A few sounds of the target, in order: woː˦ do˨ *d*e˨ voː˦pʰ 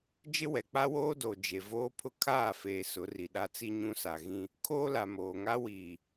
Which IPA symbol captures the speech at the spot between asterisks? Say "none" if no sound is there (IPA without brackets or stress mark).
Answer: d͡ʒ